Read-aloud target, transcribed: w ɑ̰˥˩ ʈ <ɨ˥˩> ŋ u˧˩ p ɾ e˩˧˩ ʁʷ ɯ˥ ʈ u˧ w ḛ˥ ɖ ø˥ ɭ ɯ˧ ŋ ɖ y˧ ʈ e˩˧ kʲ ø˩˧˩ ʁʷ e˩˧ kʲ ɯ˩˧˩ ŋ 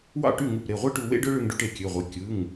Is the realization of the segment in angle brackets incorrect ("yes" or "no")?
yes